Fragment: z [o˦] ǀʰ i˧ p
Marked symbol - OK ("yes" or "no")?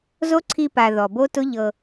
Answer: yes